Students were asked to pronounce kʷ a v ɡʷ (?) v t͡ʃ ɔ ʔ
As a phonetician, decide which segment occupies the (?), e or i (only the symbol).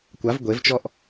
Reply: e